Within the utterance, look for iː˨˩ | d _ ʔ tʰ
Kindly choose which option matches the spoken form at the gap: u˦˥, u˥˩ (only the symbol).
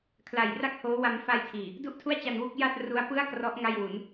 u˥˩